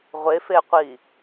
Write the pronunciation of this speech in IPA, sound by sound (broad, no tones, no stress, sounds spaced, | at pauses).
ʁʷ e f e qʷ i